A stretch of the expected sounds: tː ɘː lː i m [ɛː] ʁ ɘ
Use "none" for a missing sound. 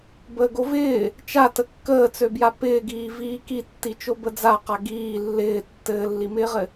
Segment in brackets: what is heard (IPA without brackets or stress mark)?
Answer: ɪː